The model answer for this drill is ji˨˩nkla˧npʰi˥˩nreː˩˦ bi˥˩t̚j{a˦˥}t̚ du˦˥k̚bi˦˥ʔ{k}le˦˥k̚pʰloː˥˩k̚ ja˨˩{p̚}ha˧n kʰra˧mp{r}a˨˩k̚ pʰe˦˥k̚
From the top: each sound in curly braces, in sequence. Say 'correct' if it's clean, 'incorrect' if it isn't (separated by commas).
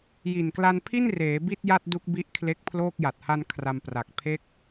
incorrect, incorrect, incorrect, correct